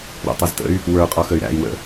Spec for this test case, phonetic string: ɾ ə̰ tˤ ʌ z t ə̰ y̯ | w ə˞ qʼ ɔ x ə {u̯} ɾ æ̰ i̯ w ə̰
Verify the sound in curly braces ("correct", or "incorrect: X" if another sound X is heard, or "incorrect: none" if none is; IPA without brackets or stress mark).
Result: incorrect: y̯